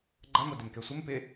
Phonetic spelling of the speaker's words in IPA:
ɡ͡ǃa modɪmkɛsʷɪm pɪ

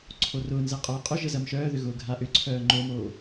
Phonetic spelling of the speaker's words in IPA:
ǀʰorʊːnzɛ qʼœːqʼʊʒə zɐmʃœːðʏ ɣʊːɡʱaʔʏǀʰœː ŋ͡ǃomoː

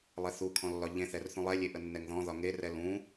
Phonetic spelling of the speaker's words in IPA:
lˠɛθukʰɔ̃ lːɒʎẽθɛr θũlˠɛlʲe ʔənːɛŋðɔ̃ðɒ ŋerɛ lũ

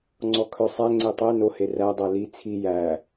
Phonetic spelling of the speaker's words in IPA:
ŋ͡ǀɔkʰœsˤæ ŋ͡ǀetˤɛ no heræ dˤɛli t͡sʰi jæ

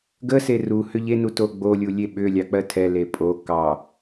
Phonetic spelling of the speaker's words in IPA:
ɡə seru hʏʎe nutoɡ͡bo lʲulʲeɓʏ lʲɑk͡pɜtʰɛ lepʼo kɑ

